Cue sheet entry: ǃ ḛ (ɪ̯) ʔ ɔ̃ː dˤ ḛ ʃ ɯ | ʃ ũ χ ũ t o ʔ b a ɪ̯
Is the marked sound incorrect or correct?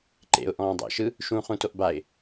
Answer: incorrect